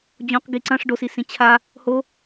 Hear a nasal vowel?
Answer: yes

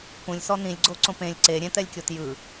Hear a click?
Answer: yes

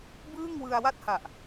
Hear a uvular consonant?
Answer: no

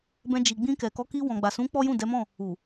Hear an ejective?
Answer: no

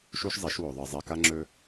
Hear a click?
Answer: yes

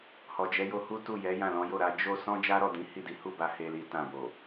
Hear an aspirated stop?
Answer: no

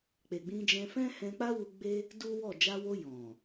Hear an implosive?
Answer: no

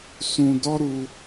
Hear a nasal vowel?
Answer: yes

